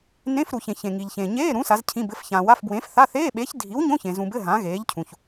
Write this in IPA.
n ẽ˧˥˧ f ɾ u˨ ç ẽ˨ ç ẽ˨ ŋ i˨ ʎ ç ẽ˨ ɲ eː˧˥˧ ɾ ũ˨˥ s a˨˥ z cʰ ĩ˧˥˧ b ɘ˧˥˧ f ç ãː˨ w a˧˥˧ f b w ẽː˨˥ f θ a˧˥˧ θ eː˧˥˧ ɓ eː˨˥ ç dʱ i˨˥ w ɲ õ˧˥˧ ç ẽ˨ z ũ˨ b ɘ˧˥˧ ɦ ã˨˥ ɣ eː˨˥ ʎ cʰ ũ˨ ç

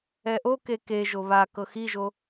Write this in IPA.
ɛ ʔ o k e k e ʒ o β a k ɤ x i ʒ o

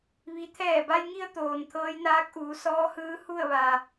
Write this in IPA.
ʋ i˧˥ t̪ʰ ɛː˧˩ b a˧ j ŋ i˧ ə̯ t̪ oː˩ n t̪ʰ ɤː˧˥ j n aː˧˥ k̚ ʔ uː˩˧ s ɔː˧˥ h ɯː˧˥ h u˥˨ ə̯ ʋ a˩

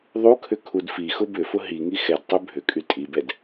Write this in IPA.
ðˤ u kʰ ʏ kʰ u d f i x ʊ b ʏ f ʊ ɦ i ŋ i x ɛ d tˤ y bʱ ʏ kʼ y tʼ i b ɛ d

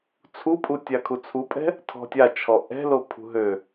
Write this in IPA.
t͡sʰ u pʼ u tʲ a kʰ u t͡sʰ u pʼ ɛ̤ | tʰ ɔ̤ tʲ a t͡ʃʰ ɔ ʔ ɛ̤ l o pʰ ṳ ɦ ø

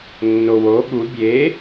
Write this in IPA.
nː o w o ɠ u bʲ e

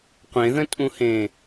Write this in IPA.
qʷ ẽ ð ə̃ tʼ ũ h ẽː

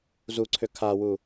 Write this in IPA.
z u ǀʰ ʏ kʰ a w u

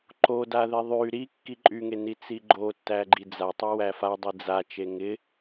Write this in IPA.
ǃ o d a ð e ðˤ y ɾ i kː i ǃʼ y ŋ e n i t͡s i ɡ͡ǃ o tː æ ɡ͡ǃ i d͡z a tˤ y w æ f a dˤ i d͡z a t͡ʃ e ŋ ɪ

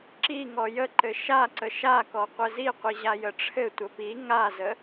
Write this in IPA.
ǁ i ŋ ɔ j ə ǃ ɘ ʃ a ǀ ə ʃ a k ɔ qʷ ɘ z i qʷ i ʑ a j ə ʈ͡ʂʰ ɘ tʷ ə p i ŋ a z ə

